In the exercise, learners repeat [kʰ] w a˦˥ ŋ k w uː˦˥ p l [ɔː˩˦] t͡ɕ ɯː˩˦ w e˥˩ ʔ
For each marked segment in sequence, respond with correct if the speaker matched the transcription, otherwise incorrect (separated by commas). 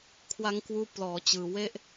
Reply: correct, correct